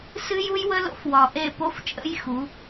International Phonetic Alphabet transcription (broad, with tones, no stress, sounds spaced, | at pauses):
s ɨ˦ j u˦ j w ə˦ l o̰˦ f w ɒ˨ ʔ e˦˨ p o˦ f t͡ʃʼ ə̰˦ j x u˨˦